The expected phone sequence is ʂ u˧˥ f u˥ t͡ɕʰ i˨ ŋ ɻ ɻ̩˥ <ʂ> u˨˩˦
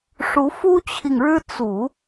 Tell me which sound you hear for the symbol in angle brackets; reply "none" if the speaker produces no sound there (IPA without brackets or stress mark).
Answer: t͡s